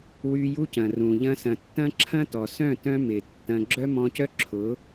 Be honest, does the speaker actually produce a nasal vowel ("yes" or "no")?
yes